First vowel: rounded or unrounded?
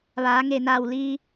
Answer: unrounded